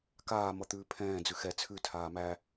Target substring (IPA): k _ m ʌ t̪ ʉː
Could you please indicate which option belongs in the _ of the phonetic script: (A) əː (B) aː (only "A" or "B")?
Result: B